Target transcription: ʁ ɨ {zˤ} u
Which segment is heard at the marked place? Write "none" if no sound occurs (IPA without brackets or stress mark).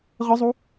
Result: zˤ